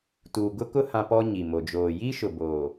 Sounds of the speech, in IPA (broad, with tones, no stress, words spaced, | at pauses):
tuː˨ ɡʊ˦kʊ˦ hã˦pɔ˦ɲi˨mo˨ d͡ʒoː˨ji˦ʃʊ˨ boː˨